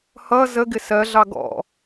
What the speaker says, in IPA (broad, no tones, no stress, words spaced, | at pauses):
hʌ zə ɡɪsɜɮɑ ɡɔ̰